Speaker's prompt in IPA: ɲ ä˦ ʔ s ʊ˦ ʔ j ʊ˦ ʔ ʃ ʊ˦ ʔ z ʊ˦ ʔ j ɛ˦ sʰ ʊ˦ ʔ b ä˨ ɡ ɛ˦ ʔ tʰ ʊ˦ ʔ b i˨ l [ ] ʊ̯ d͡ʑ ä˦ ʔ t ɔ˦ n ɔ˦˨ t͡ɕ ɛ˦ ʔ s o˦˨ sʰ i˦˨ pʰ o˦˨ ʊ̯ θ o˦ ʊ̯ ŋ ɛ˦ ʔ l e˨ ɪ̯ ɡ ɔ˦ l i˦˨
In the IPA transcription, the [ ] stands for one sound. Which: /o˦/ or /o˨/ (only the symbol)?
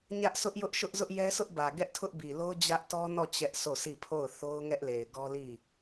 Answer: o˦